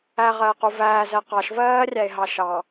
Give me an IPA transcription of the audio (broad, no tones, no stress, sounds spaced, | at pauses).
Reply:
æ ʁ ɜː q u v æː z ɜ q ɑ ʃ v ɜː rʲ æ e̯ ɦ ɑ ʃ ɑ